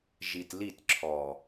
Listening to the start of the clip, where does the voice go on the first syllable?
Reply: low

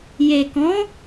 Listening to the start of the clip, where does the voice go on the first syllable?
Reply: low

